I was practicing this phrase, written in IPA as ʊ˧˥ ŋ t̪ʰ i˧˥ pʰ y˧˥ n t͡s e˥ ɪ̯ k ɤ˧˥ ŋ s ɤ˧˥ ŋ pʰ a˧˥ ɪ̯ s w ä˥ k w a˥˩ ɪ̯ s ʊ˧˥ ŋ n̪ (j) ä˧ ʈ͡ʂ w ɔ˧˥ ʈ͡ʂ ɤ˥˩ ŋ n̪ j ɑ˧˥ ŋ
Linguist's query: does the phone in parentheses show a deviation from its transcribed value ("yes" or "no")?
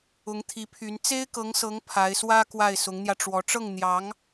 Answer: no